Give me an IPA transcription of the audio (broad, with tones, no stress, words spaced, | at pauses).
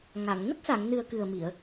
ŋa˨˩˨ŋ nə˦˥k̚sa˨˩˨ŋnɨ˨˩ə̯ kɨ˨˩ə̯mi˨˩˨ə̯